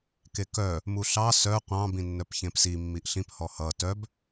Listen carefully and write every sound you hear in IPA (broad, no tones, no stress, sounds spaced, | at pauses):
k e k œ | m u ɬ ɑ s œ qʷ ɑ̃ b ĩ nː œ p ç ẽ p s i mː i ʔ ɬ ĩ p h ɔ h ʌ t œ b